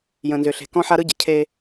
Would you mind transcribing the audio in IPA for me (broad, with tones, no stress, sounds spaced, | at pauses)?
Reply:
j ə̃˨ n z ʏ˨ ɬ e̤˨ k ɔ̃˦ ħ a˦ ɾ ɯ˦ ɟ ə˨ cʰ e˦